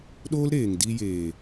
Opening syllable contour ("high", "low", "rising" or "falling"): high